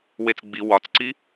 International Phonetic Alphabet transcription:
wet͡sɡ͡bi wɒt͡sǀi

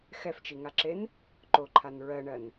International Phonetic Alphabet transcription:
xɛft͡ʃiŋaǁen | ǃoǃʰan ɹɜɳɜn

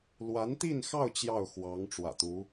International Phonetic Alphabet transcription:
lwa˧˥nt̪i˥˧nxɑ˥˧ʊ̯ t͡ɕjɑ˥˩ʊ̯xwɑ˧˥ŋ ʈ͡ʂwä̰˨˩t̪u˧˥

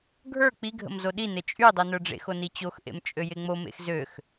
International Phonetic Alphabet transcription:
ɡʱə˞ k͡piɡʱə̰m zoɗine t͡ʃʼy dˤinə˞ɖ͡ʐḛxo nit͡ɕoxʔḛm t͡ʃʼøjeŋ͡momḛx zøx

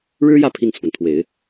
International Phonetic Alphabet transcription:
ɻɻ̩˥jä˥˧ pʰi˥˩nt͡sʰwə˩nt̪ʰwe˨˩˦ɪ̯

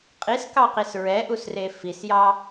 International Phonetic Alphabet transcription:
qʼiskɑqis ɹɛʔusre fisjɑ

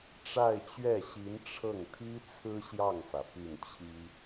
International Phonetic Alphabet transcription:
ʈ͡ʂa˥˧ɪ̯t͡ɕɥɛ˥˩ɕi˧˥n ʈ͡ʂʰɤ˥˩ŋt̪ʰi˥ t͡sʰɹ̩˥ɕjɑ˥˩ŋfä˩ py˥˩nt͡ɕʰi˥

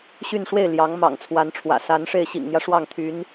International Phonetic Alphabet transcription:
ɕy˥˧nʂwe˥˩ɪ̯ ljɑ˧˥ŋ mɑ̰˨˩ŋt͡sʰwa˧˥nʈ͡ʂʰwä̰˨˩ sa˧˥nʂe˥˩ɪ̯ ɕḭ˨˩ŋn̪jä˦ ʂwɑ˥˩ŋt̪ʰy˧˥n

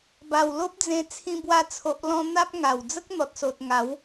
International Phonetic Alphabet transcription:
ba˨˩w lo˦p̚d͡zẽ˧ t͡sʰĩ˧bwa˧t͡sʰo˨ʔlɔ̃˧ n̪a˦p̚ŋa˨˩w d͡zə˦k̚n̪ɔ˨t̚so˨t̚ ŋa˨˦w

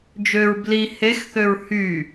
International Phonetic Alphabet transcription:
d͡ʒøɹ bli hexθøɹ hy

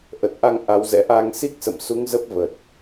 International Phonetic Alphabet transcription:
ʔə˨˩t̚ʔa˧ŋ ʔa˨˦wzɛ̰˧˥ ʔa˧ŋ si˦˥k̚sə̰˧˨m su˨˦ŋ zə˦˥p̚və˨˩t̚

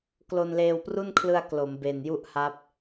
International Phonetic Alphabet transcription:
klo˧nleː˧wpru˥˩nkʰlɯ˧a̯ klo˩˦mbe˨˩nju˥˩ʔha˦˥p̚

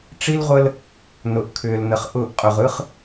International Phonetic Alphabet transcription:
ʈ͡ʂi˦lʁʷə˦l | nʊ˨ʔkʰʏː˨lnə˨χ ʔʊː˦˨ʔ qʼʊ˨ʁɯ˦χ

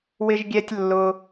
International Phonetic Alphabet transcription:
wɪ˥ʒɡʲɛ˥tʲ lːʊ˥

